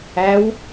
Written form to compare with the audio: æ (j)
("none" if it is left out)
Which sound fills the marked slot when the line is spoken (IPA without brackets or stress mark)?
w